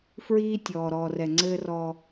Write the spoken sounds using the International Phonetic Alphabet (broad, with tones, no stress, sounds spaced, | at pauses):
f ɹ iː˦ tʲ ɔː˨ ɾ ɔː˨ r ɛ˨ ŋ͡ǀ ɘː˦ r ɔ˦